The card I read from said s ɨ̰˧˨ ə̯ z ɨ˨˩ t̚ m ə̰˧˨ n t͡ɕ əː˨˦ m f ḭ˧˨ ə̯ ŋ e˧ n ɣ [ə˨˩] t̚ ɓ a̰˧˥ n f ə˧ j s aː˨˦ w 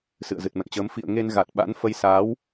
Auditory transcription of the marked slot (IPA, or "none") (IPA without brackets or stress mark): a˨˩